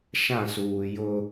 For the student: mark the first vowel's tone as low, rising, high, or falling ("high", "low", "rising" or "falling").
falling